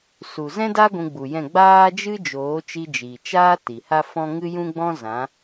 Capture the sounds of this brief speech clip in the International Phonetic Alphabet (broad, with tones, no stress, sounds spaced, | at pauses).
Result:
s u˨ z ɛ̃˦ d a˦ ɡʷ ũ˧ ɡ͡b u˨ j ɛ̃˦˨ ɡ͡b aː˦ d͡ʒ ɨ˦ d͡ʒ oː˨˦ t͡ʃ i˧ d͡ʒ i˨ t͡ʃ aː˦ t i˨ h a˦ f ɔ̃˦ ŋ ɨ˦ j ũ˦ ɡ͡b ɔ̃˦ z ã˨˦